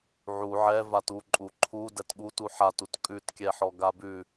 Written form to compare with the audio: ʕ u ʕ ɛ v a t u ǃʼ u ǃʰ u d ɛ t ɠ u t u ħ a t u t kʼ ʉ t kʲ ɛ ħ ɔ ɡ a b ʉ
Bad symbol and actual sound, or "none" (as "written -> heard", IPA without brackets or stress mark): none